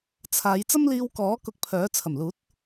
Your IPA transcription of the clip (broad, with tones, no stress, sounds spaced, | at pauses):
t͡sʰ aː˨˧ j t͡s ɐ˥ m l iː˧ w k ɔː˨˥ k ʊ˧ k̚ pʰ œː˨˥ t͡sʰ ɐ˨˩ m l uː˨˥ t̚